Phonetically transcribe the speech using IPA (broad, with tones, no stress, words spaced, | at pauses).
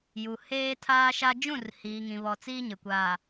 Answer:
ju˨ heː˦tʰaː˦ʃa˦ d͡ʒũ˦˨rhiː˨ŋĩ˨βɔ˨ t͡siː˦ɲɪ˨kʷaː˨